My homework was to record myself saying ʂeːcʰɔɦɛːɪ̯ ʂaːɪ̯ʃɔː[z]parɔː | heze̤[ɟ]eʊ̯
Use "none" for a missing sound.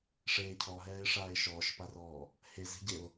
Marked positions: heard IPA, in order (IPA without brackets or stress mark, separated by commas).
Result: ʃ, ɟ